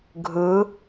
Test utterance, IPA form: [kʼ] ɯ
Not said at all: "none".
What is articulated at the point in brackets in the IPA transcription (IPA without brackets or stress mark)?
ɡʱ